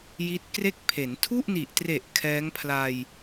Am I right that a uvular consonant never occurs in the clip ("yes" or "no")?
yes